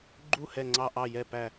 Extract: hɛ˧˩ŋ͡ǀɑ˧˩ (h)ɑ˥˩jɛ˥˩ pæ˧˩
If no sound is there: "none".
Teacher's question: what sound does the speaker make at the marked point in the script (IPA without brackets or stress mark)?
ʔ